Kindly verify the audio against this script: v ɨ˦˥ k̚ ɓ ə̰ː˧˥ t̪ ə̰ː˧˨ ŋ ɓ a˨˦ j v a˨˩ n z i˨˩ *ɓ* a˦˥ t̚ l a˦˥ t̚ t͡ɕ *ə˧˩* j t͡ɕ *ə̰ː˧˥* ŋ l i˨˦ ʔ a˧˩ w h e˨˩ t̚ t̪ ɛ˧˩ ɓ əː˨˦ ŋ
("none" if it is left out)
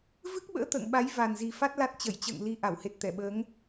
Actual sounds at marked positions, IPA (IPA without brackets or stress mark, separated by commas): f, ə˧˩, ə̰ː˧˨